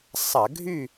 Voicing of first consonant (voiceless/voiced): voiceless